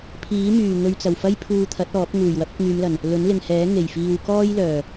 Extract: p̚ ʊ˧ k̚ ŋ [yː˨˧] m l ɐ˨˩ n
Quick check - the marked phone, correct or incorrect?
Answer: correct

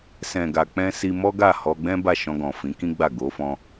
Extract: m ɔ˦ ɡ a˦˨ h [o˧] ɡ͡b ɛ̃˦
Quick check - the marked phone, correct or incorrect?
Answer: incorrect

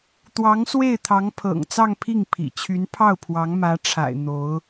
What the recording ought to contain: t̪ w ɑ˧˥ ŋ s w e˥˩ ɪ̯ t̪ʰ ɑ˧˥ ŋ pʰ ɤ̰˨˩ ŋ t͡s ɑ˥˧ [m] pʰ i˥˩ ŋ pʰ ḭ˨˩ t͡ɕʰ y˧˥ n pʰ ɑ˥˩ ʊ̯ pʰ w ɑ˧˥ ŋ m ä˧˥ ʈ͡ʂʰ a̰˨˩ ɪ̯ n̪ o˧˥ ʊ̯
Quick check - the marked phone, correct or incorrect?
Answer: incorrect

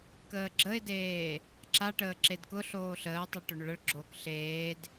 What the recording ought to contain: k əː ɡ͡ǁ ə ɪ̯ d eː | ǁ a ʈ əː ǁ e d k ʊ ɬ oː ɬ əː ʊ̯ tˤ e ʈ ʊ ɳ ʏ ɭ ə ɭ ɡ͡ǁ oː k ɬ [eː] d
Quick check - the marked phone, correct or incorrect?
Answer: correct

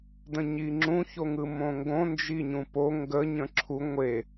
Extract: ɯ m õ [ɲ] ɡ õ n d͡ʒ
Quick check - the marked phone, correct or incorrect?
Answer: incorrect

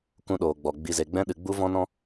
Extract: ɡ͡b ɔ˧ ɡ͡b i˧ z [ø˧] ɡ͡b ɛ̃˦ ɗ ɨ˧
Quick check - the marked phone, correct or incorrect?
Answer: incorrect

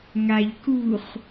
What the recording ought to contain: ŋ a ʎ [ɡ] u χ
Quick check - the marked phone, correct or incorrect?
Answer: incorrect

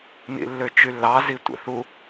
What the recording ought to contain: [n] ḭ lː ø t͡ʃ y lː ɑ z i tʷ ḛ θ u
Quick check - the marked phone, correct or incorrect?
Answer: correct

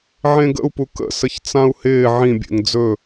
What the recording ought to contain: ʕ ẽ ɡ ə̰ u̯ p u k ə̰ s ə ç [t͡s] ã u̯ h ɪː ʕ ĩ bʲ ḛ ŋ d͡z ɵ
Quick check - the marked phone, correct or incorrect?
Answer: correct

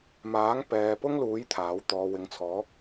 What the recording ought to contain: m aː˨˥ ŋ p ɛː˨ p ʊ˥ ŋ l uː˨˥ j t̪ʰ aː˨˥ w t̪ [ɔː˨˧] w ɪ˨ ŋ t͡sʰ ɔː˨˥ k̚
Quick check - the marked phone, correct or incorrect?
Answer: incorrect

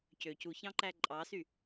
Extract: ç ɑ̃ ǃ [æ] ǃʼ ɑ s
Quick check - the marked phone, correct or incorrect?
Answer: correct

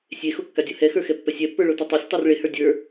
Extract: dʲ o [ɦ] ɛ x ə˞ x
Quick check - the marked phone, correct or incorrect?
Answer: incorrect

